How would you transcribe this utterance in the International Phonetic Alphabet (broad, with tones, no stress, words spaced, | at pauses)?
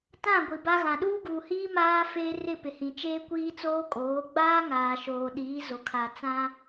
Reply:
tã˦˨ ɡʷi˨ba˦ɣã˨ ɗuː˦ɡuː˨hiː˦ maː˦ feː˦ rɪ˦˨pɪ˨hĩ˨ t͡ʃeː˦kʷiː˦t͡soː˦kʼoː˨˦ ɡ͡baː˦ ŋaː˨ʃoː˨ɗiː˨˦ zo˨ kʰa˨t͡sã˦